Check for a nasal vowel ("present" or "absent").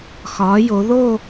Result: absent